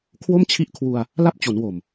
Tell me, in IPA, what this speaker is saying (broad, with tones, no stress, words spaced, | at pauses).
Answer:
kʰwo˥˩mt͡ɕʰi˦˥ʔkʰwu˧a̯ | la˥˩p̚t͡ɕo˩˦nwo˨˩m